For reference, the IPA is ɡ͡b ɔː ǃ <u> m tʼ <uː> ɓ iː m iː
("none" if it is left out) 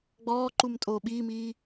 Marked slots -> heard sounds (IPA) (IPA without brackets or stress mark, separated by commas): u, oː